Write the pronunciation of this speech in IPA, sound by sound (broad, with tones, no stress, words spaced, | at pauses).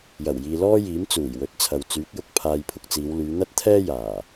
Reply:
jɐ˨˩wjiː˨lɔː˥ jiː˨˥mt͡suː˨˩jwɵ˨˥t̚t͡sʰɐ˨w t͡syː˨˥k̚jʊ˧k̚ pʰaː˧jpʰʊ˧k̚t͡siː˨˧wlyː˨˧ n̪ɐ˥t̚t̪ʰɛː˥ jaː˨˩